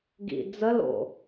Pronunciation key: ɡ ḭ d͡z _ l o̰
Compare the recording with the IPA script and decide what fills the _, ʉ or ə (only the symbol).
ə